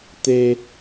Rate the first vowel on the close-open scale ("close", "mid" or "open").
mid